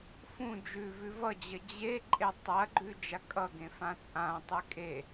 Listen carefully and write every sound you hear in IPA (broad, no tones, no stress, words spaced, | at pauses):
fũ d͡ʒʉvʉ vʌd͡ʑə d͡ʑe ǃʼetˤɐɡ͡ǃʉ d͡ʒakʼʌɡẽ fãt͡sʼãtˤɨ kʼe